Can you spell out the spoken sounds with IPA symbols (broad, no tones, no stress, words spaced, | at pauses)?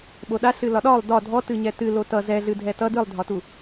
ɓoɗa ɬɨlɒɗɒlˠ dɒ dʱɔ tɨɲɛtɨ lotʌ zɛɮɨ dʱɛtʌ dɨlˠdʱɒtu